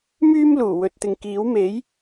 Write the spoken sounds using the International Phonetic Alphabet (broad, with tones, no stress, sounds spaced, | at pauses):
m yː˧ m l uː˨˩ w ɵ˨ t̚ t̪ ɪ˨ ŋ k iː˨˥ w m e˨˥ j